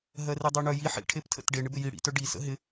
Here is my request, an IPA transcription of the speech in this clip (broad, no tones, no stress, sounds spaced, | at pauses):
ɦ ɜ r i dˤ œ ɳ œ j i ħ ḭ ʈʰ e p tʰ ə̰ t ɖ e ɳ ɪ b ɪ j i ɽ ḭ t œ ɖ i s ə̰ ɦ ɪ